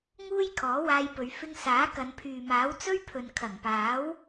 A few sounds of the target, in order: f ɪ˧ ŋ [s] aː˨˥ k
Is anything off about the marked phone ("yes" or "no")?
no